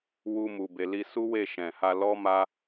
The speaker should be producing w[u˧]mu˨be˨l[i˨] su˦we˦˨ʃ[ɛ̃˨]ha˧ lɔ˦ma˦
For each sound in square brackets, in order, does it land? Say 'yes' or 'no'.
yes, no, yes

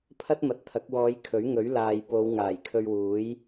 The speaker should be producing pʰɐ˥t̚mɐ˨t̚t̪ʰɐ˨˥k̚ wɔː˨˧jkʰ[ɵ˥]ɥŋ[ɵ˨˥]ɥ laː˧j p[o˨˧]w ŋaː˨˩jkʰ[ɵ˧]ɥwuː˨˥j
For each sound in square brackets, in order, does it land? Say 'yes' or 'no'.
no, yes, yes, yes

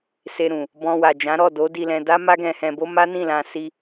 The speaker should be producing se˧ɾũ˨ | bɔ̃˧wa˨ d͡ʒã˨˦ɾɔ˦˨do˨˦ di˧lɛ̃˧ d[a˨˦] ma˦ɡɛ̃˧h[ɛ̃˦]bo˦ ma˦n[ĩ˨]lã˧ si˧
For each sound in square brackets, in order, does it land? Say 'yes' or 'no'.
no, no, no

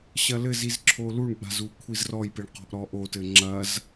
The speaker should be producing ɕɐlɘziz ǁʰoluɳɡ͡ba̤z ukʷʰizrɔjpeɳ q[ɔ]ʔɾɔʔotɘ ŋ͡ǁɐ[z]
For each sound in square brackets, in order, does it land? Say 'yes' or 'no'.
no, yes

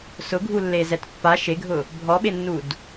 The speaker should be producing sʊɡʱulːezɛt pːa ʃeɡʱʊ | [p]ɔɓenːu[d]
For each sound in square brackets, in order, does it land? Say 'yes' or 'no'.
no, yes

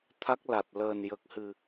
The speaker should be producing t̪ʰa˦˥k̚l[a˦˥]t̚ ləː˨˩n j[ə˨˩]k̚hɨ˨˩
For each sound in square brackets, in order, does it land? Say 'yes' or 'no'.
no, yes

